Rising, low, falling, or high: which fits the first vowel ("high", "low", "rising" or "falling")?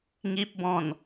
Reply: low